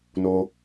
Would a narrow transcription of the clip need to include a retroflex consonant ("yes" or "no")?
no